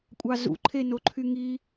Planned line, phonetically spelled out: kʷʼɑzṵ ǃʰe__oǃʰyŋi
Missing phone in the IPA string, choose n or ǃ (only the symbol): n